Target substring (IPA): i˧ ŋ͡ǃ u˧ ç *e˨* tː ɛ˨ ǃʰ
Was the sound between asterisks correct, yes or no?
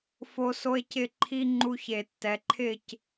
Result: yes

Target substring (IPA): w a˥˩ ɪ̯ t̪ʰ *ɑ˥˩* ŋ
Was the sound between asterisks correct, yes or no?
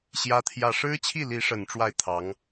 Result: no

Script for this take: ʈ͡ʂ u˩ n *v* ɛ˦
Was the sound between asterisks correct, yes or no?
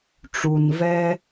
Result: yes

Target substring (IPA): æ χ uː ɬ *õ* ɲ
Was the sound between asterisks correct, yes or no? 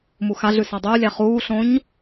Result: yes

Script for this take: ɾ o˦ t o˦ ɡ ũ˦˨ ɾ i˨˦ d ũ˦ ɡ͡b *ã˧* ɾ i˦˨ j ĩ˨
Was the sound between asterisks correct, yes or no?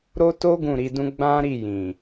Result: no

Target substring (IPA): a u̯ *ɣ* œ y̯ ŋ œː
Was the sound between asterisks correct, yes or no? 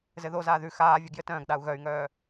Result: yes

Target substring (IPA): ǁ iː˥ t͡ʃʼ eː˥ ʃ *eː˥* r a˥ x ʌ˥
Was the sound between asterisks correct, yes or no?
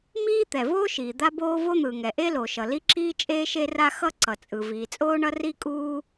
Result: no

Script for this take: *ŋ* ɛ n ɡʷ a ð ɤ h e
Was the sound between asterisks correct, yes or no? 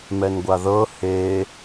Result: no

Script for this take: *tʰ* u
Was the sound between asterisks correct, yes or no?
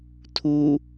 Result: yes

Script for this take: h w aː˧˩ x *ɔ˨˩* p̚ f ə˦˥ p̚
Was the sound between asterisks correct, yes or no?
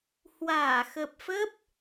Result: no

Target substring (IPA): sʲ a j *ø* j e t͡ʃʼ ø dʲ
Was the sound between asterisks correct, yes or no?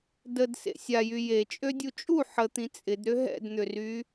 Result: no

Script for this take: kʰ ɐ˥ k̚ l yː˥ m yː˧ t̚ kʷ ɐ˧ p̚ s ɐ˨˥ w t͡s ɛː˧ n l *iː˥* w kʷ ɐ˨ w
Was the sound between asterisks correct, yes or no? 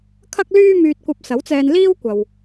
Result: yes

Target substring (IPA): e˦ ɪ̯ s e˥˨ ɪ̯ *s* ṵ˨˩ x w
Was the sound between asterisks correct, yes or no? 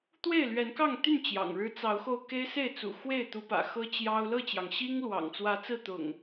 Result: no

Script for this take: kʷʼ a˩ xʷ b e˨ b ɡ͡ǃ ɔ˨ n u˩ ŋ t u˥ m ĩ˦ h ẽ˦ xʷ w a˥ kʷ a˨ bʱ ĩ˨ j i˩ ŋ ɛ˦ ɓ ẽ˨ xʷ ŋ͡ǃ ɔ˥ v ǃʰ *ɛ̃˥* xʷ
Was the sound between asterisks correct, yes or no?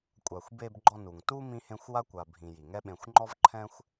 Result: yes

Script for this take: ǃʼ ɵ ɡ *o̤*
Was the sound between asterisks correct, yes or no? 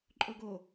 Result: no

